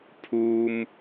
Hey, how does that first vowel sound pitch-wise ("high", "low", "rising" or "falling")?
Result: high